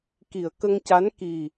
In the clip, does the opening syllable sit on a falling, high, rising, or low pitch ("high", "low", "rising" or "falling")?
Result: low